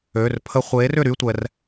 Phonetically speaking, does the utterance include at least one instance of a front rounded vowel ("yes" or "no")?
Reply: yes